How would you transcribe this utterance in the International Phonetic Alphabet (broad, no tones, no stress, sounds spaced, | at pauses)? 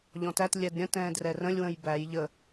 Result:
ʎ ɔ̃ t æ t lʲ ɛ d ɾʲ ə̃ t ɛ̃ː d r ɛ r ə̃ lʲ w ə̃ j b æ j ʎ ə